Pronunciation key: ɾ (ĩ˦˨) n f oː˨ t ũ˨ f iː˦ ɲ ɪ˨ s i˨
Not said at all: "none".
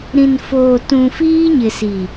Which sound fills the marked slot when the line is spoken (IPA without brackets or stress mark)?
ĩ˨